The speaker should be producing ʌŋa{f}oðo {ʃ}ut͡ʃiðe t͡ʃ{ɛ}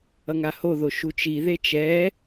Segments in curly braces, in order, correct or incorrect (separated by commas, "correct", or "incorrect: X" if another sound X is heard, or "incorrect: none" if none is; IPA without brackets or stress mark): incorrect: h, correct, correct